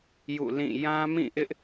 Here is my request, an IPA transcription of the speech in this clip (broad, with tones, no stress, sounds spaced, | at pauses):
j ṵ˦˨ l ĩ˦˨ j ã˦ m ĩ˦˨ ʔ ɪ˦ ʔ